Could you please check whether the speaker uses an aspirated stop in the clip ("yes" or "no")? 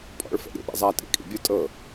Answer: no